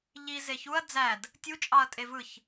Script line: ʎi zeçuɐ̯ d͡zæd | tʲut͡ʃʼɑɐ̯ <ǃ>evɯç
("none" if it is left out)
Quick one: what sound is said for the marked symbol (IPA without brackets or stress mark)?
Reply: tʼ